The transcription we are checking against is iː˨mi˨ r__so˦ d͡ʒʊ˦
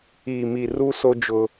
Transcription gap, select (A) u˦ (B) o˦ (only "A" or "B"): A